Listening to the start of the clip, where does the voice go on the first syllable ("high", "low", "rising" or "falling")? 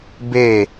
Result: falling